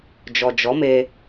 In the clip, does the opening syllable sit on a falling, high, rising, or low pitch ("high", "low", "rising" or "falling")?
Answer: low